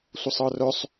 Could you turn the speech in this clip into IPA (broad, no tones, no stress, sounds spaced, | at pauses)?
sʷ ə sˤ ɤ r œ sˤ